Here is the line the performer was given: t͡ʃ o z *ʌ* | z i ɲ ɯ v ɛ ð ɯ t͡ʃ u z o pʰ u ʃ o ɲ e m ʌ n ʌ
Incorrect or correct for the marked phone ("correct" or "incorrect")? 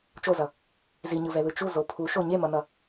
correct